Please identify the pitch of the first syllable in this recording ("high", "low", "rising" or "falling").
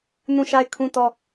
falling